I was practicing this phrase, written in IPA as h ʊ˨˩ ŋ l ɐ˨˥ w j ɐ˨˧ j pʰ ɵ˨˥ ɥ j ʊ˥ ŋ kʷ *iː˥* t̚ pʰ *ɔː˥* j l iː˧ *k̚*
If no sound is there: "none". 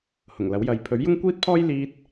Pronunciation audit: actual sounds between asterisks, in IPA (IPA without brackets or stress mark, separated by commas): iː˥, ɔː˥, t̚